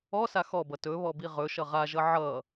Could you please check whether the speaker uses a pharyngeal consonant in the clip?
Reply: yes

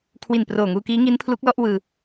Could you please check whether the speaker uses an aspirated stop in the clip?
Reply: yes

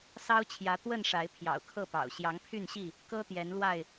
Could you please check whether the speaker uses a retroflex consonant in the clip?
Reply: yes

